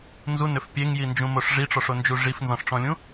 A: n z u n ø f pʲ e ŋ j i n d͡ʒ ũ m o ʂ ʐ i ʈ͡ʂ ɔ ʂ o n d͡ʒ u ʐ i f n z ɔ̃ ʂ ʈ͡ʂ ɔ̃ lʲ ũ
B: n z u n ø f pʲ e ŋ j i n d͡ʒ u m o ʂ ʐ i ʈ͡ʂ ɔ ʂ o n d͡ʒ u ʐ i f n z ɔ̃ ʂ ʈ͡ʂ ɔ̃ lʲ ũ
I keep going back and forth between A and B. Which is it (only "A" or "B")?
A